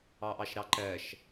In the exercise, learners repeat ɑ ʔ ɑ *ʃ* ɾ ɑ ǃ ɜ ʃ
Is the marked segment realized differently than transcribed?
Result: no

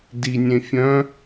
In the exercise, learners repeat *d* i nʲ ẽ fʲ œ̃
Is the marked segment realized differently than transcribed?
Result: no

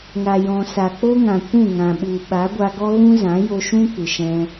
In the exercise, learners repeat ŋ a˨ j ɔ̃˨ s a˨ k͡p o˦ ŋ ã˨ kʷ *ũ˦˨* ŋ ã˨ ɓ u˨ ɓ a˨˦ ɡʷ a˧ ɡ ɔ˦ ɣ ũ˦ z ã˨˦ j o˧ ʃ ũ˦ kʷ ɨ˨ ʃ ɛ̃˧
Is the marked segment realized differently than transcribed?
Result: no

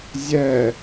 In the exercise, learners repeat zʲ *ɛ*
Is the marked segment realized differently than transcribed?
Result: no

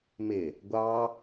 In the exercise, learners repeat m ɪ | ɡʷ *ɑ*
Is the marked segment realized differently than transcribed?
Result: no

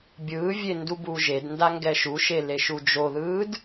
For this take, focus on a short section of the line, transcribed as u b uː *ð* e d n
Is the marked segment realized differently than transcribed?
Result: yes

